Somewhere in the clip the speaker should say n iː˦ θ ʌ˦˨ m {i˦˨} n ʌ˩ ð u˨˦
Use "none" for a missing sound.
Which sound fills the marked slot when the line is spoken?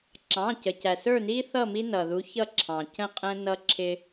i˦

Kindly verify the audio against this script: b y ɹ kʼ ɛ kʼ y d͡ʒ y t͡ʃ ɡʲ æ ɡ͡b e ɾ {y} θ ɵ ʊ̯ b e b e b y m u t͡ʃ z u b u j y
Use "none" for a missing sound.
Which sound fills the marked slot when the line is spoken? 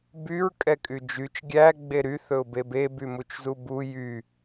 y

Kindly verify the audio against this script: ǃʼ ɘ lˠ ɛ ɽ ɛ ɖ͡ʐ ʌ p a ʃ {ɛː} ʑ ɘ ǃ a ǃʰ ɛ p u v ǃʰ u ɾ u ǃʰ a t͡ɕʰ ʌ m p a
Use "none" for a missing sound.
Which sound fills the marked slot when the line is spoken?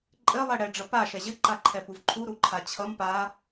ɛ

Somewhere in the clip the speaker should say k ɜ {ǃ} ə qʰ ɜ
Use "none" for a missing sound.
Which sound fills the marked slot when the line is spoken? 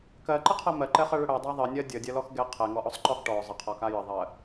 ǃ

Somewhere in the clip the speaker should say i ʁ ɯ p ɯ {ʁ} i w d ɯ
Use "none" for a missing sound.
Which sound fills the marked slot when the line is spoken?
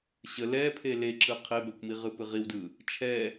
ʁ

